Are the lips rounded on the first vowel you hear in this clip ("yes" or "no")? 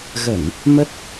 no